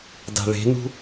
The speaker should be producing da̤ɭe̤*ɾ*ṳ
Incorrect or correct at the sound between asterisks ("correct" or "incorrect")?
incorrect